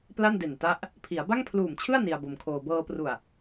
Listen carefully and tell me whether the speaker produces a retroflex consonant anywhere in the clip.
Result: no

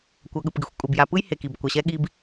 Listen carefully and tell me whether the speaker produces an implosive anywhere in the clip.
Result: yes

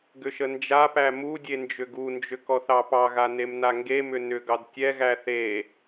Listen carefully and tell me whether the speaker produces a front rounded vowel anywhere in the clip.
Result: yes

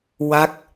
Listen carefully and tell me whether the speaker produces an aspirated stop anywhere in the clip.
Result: no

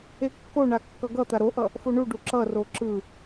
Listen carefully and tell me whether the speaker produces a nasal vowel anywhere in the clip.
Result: no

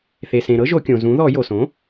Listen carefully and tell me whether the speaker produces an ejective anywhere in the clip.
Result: no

